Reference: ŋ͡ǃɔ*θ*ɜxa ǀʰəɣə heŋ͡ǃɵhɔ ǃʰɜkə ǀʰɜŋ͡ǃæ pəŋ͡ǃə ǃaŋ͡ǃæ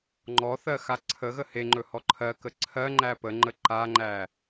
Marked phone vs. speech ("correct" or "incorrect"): correct